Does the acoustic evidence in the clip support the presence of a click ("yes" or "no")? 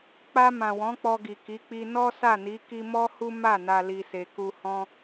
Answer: no